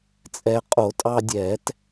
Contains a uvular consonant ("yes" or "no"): yes